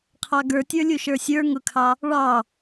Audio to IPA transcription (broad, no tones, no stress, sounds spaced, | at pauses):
qʰ ɑ ɡ ə˞ tʲ ə˞ lʲ u ʃ ə˞ sʲ ə˞ ŋ ʊ kʰ ɑ | ɭ ɑ